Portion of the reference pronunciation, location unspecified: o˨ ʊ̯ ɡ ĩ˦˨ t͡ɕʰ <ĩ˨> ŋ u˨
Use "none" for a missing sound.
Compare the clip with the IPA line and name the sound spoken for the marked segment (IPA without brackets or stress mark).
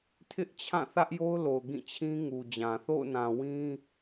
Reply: ĩ˦